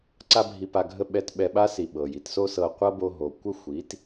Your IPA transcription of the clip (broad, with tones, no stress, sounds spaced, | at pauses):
ǀ a˦ bʱ i˧ p a˧ ɡʱ ə˦ ɓ ɛ˧ t ɓ ɛ˧ ɓ a˦ s i˨ ɓ ɤ˨ j i˧ t s o˦ s ɤ˧ qʷ ɤ˦ b o˧ ɦ o˨ kʷ ə˦ xʷ i˨˦ t